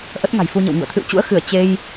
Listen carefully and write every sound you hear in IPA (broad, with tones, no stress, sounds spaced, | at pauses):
ʔ ə˦˥ t̚ ŋ a̤˨˩ j f u˧ ɲ ə̰˧˨ w ŋ ṵ˧˨ ə̯ t̪ʰ ɨ̰˧˨ w t͡ɕ ṵ˧˥ ə̯ x ɨ˧˩ ə̯ t͡ɕ e˧ j